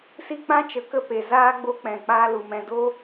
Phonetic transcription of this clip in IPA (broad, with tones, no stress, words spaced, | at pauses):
si˦ k͡pã˦t͡ʃə˨˦ kə˦ pe˨ zaː˦ ɡ͡bo˦k͡pɛ̃˨ k͡paː˧ lu˨mɛ̃˧ do˦